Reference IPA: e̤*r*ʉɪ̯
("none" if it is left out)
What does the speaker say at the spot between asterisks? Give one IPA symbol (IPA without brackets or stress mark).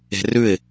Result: r